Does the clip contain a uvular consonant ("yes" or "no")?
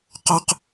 yes